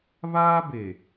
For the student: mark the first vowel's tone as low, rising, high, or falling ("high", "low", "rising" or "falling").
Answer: high